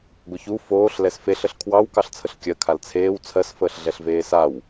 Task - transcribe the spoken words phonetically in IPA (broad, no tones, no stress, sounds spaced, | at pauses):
ɡʷ ə ç u f oː ɬ l ɛ s f e ɬ ə ɬ kʰ w ɑ w k ɑ ɬ t͡sʰ ə ɬ kʲ ɜ kʰ a l t͡sʰ eː w t͡sʰ ɜ s f əː ɬ ɮ ɛ ɬ v eː s a w